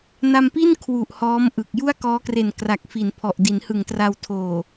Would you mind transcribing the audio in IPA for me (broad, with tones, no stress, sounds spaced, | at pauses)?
n a˧ m p i˥˩ n kʰ w u˨˩ ʔ h ɔː˦˥ m ʔ ɯ˨˩ k̚ j u˥˩ a̯ k ɔː˦˥ k r e˨˩ n k r a˨˩ k̚ f i˩˦ n pʰ ɔ˨˩ ʔ d i˩˦ n h ɯ˨˩ ŋ t r a˧ w tʰ oː˨˩